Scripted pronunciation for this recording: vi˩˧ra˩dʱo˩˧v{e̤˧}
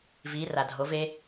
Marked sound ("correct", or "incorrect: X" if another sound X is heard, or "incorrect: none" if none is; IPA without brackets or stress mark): incorrect: e˧